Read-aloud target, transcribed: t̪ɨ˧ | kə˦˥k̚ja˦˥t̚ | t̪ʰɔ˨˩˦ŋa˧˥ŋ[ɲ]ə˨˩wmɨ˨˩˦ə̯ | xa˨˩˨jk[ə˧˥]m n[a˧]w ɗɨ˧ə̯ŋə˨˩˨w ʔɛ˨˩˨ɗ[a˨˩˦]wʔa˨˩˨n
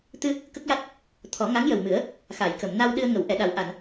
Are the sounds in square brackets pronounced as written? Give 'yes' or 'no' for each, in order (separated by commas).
no, no, yes, yes